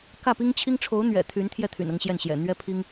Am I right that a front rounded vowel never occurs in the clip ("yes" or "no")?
no